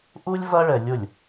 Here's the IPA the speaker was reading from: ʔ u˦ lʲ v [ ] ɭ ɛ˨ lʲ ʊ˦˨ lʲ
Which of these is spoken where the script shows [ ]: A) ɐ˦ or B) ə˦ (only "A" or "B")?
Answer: A